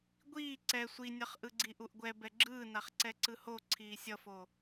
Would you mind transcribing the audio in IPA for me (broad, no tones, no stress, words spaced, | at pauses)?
ɡʷiː ǀɛ sʷinʲʌχ ʔɯɡ͡ǀiʔuʔɡʷɛ bɛɡ͡ǁɯːnaχ ǀɛǀɯho ǀʰiːsʲʌfo